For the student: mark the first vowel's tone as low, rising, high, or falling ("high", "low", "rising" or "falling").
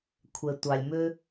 low